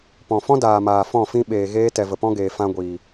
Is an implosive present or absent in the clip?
present